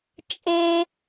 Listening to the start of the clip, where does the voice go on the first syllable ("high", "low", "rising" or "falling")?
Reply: high